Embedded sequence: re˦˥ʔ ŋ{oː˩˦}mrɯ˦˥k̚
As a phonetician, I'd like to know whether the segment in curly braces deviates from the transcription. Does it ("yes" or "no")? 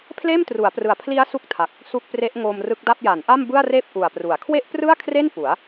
yes